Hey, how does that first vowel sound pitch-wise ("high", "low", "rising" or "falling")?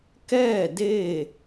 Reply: falling